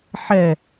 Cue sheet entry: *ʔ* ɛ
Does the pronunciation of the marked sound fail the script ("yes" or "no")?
yes